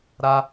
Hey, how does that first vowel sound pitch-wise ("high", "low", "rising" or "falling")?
high